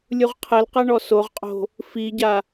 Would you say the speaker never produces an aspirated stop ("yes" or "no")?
no